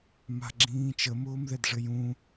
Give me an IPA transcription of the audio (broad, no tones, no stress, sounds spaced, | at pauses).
m a̤ ɡ͡ǁ ĩː t͡ʃ ə m ʊː m ð ɛ d ʐ ɘ j ũ